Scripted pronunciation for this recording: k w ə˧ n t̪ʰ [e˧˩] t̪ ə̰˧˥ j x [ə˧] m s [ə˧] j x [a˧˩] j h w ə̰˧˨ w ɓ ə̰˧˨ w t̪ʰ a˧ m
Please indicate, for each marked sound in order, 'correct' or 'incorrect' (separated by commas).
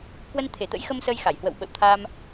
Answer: correct, correct, correct, correct